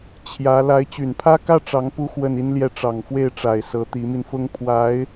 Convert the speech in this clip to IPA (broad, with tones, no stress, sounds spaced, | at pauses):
t͡ɕʰ j ä˧˥ l a˧˥ ɪ̯ t͡ɕ y˨˩ n pʰ ä˥ k ä˥ ʈ͡ʂ ɑ˧˥ ŋ p u˥ x w ə˥˩ n i˥ n l j ɛ˥˩ ʈ͡ʂ ɑ˨˩ ŋ f w e˥˩ ɪ̯ ʈ͡ʂ a˨˩ ɪ̯ s ɤ˧˥ t̪ i˧˥ m i˧ n f ʊ˥ ŋ pʰ w a˧˥ ɪ̯